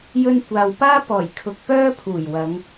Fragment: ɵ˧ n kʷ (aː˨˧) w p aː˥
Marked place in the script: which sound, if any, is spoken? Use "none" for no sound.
aː˨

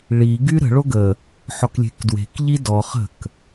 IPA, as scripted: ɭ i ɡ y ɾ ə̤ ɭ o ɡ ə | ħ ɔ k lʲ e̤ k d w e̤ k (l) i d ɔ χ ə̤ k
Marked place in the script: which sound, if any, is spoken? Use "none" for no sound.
ʎ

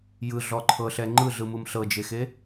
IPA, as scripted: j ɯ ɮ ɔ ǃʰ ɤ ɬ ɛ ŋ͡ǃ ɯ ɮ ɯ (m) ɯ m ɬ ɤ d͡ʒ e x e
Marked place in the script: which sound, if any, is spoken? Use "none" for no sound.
m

